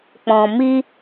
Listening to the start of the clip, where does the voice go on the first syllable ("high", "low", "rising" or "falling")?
low